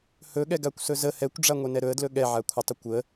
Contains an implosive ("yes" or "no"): yes